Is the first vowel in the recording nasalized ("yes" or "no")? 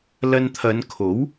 no